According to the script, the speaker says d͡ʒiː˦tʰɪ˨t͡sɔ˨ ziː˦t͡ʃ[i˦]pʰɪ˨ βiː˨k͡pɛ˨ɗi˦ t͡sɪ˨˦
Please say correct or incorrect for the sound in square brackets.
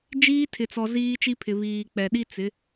correct